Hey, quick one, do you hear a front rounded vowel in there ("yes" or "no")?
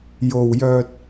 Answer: yes